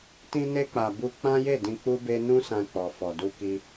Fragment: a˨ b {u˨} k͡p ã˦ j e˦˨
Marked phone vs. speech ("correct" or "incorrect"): incorrect